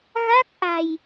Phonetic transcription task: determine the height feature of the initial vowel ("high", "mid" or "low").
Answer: low